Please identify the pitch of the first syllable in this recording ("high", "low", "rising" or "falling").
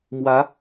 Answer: rising